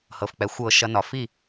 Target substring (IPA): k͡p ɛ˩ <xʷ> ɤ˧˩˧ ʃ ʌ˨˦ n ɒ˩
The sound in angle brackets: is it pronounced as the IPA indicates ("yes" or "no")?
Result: yes